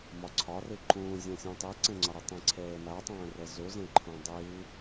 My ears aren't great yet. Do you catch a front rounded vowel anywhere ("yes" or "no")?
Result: no